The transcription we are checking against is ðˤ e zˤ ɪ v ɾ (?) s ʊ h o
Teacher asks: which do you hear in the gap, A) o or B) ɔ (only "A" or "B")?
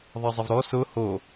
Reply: B